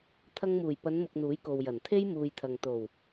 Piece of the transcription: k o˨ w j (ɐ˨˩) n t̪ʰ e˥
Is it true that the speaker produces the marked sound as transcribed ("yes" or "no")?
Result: yes